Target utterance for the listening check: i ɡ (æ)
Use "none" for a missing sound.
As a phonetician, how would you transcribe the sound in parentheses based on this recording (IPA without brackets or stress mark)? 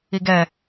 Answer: ɛ